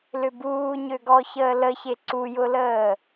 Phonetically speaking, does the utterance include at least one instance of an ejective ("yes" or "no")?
no